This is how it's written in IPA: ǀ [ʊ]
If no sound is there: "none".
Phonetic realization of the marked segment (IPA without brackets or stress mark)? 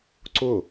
ʊ